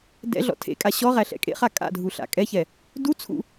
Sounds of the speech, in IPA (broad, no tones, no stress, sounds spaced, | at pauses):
d ɛ̰ ɮ ɔ̰ tʰ ḛ kʼ a ɕ ɔ ʁ æ ɬ ɛ̰ kʼ ḛ χ a kʼ a̰ dʱ u ɬ a̰ kʼ ɛ ç ɛ | d u t͡sʰ ṵ